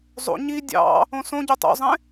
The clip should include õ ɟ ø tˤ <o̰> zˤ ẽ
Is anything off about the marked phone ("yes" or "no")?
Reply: no